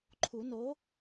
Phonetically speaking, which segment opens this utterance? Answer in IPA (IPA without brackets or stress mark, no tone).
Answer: ǃʰ